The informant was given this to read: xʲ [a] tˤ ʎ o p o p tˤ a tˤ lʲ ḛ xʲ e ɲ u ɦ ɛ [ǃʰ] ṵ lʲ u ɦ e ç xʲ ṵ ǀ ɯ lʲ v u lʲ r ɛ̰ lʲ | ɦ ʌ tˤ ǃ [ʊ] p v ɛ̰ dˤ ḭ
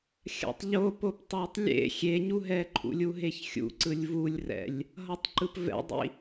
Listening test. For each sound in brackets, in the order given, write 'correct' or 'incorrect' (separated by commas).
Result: incorrect, correct, incorrect